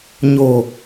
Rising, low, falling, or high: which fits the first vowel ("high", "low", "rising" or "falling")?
low